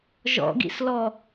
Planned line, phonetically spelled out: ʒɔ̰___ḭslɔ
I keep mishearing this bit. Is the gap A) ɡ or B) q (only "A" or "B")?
A